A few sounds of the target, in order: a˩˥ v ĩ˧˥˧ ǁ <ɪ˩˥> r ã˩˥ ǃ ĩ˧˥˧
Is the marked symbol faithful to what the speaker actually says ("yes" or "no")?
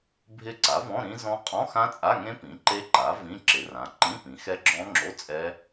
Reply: yes